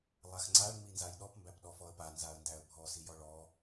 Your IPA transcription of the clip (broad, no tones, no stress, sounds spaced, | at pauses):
lˠ a x ŋ͡ǀ a ɭ ŋ͡m i n z a j ɗ ɔ p m b æ p ɗ ɔ f ɔ ə̯ p a n z a ə̯ n d æ ə̯ bʱ ɔ s i j ɔ ɭ ɔ